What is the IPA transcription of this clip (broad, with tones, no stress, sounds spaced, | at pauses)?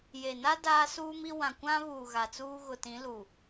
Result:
j e˨ n a˦ d aː˦ s uː˦ m i˦ w ã˨ kʷ ã˦ β uː˨ ɣ a˨ t͡s uː˦ ɣ ʊ˨ t ĩ˨˦ l u˨